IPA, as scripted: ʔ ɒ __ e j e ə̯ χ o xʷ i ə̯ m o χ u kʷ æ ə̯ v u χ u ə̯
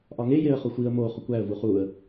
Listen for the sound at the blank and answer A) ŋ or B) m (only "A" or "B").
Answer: A